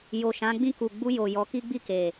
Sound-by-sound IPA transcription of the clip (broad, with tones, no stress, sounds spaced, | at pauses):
j o˨ ʃ ã˨˦ ɡ͡b ĩ˦˨ k u˨ ɡ͡b u˧ j o˨ j ɔ˨˦ k i˦ ɡ͡b i˦˨ k e˨